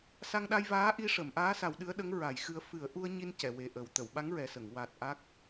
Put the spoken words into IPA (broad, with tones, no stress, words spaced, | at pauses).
sa˧ŋɗa˧jvaː˧˥ ʔi˧ʂə˨˩˨mʔaː˧˥sa˨˩˦w ɗɨ˧˥ə̯ɗə˧˥ŋ ɹa˨˩˦jxɨ˧ə̯ fɨ˨˩˦ə̯ʔu˧ə̯ɲi˧n cɛ˨˩˨we˨˩ ʔə˨˩w t̪ə˨˩˨wɓa˧˥ŋɹɛ˨˩sə˨˩˨ŋ wa˨˩t̚ ʔa˦˥k̚